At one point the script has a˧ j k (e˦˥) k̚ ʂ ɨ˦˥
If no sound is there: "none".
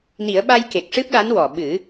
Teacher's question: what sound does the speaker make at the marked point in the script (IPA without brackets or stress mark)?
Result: e˨˩